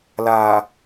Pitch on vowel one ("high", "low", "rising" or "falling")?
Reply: low